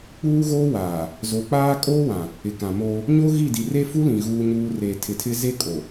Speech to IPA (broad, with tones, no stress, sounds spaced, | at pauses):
k͡p uː˦ ɣ oː˦ w aː˨ | z o˨ k͡p aː˦ kʼ oː˦ w ã˨ | ɪ˨ k ã˨ m oː˦ | ɲ o˦ ɣ i˦˨ d i˨ r e˦ f u˦ l ĩ˨ ɣ uː˦ ɲ uː˦ r e˨ tʰ ɪ˨ tʰ ɪ˦ z e˦ kʼ o˨